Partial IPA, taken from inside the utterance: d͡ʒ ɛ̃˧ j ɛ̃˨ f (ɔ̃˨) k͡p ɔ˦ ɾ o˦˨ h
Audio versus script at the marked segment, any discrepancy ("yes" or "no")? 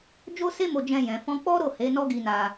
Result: yes